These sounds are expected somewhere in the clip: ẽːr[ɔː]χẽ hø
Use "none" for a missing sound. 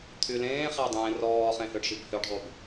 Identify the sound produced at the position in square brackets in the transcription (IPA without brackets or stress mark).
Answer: ɔː